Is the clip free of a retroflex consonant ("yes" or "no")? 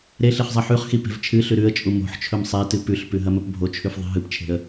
yes